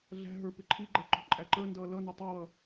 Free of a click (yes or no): no